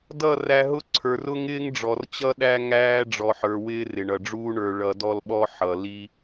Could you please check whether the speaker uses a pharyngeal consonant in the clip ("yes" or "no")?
yes